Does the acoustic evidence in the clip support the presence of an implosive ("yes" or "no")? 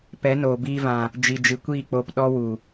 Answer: yes